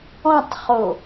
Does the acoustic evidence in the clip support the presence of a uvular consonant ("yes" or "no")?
yes